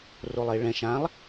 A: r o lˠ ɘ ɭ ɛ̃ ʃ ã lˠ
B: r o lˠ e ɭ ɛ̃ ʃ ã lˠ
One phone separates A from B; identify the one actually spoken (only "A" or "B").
B